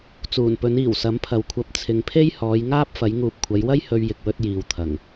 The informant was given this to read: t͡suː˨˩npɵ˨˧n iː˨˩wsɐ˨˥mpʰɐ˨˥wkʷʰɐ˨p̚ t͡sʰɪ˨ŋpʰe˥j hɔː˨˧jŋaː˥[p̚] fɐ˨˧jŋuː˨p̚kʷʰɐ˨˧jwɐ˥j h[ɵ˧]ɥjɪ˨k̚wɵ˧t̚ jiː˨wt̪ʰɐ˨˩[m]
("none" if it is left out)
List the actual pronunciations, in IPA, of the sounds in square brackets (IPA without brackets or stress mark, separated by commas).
p̚, ɵ˧, ŋ